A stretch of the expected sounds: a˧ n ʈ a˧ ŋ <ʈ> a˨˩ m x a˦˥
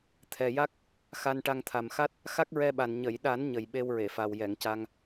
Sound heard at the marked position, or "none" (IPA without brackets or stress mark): t̪ʰ